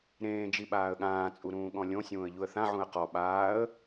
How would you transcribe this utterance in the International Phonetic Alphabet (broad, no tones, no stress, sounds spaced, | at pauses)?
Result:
ɾ ẽː d͡ʒ i ɓ aː ə̯ ɠ ãː t͡sʼ u ɾ ũː ɠ ɔ̃ lʲ õ sʲ ũː ə̯ ʎ u ə̯ θ ã ʕ ũ ə̯ q ɔ ɓ aː ə̯